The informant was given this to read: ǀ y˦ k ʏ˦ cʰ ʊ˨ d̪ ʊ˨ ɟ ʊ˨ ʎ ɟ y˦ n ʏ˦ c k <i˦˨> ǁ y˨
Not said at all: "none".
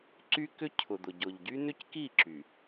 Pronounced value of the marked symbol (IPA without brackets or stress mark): i˦˨